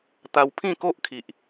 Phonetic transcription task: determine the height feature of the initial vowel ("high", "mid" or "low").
low